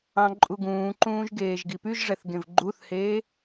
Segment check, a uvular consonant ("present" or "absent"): absent